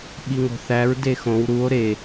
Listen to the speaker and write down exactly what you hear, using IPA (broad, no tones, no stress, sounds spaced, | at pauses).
ɓ i ŋ o̤ θ æ ɹ d e x õ w ɾ u o̯ ɾ e